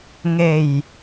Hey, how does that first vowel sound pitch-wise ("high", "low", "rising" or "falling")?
low